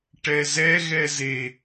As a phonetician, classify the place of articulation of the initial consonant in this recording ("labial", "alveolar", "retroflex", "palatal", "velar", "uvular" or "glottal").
retroflex